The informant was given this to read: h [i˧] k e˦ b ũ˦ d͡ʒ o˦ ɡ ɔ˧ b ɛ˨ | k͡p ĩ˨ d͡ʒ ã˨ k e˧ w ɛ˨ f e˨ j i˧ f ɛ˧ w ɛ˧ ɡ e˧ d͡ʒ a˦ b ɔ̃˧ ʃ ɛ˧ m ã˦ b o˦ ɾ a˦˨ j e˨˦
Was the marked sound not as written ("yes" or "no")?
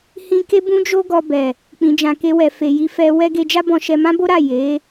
yes